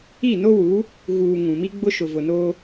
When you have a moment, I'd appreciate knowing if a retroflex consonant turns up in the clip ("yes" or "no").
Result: no